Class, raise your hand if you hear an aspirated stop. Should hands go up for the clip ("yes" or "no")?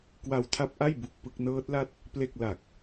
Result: yes